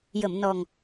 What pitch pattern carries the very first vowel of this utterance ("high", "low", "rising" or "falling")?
low